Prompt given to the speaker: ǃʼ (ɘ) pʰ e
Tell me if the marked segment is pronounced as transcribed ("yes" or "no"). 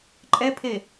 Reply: no